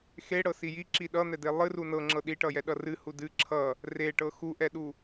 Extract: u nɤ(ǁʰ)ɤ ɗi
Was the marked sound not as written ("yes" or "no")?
yes